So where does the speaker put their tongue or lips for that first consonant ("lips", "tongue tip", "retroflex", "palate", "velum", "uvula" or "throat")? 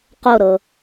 uvula